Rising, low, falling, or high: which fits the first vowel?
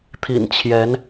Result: low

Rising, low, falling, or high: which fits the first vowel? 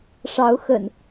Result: rising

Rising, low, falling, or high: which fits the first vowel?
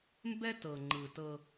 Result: high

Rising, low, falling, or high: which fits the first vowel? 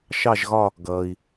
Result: falling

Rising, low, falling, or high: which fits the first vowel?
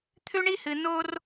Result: high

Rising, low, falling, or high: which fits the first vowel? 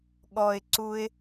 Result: low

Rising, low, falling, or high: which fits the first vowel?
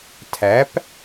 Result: rising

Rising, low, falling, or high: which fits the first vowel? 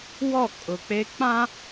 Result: falling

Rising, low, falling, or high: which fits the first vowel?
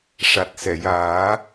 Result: low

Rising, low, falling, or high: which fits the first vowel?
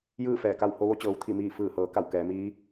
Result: falling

